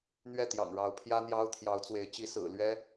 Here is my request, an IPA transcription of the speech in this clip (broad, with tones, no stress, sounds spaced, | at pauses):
n̪ ɥ ɛ˥˩ t̪ j ɑ̰˨˩ ŋ ɻ ɑ˧˥ ʊ̯ pʰ j ä˥ n̪ j ɑ˥ ʊ̯ t̪ʰ j ɑ˧˥ ʊ̯ t͡s w e˧˥ ɪ̯ t͡ɕ i˧˥ s ɹ̩˨˩ l ɥ ɛ˥